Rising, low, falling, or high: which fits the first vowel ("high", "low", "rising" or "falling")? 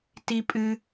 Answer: low